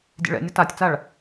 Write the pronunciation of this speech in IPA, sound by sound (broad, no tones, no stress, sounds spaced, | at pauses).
dʲ ḛ ɭ ɛ̰ nʲ ʌ t a tʲ t͡s a ɭ